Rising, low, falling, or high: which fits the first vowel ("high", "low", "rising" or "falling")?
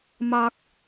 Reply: high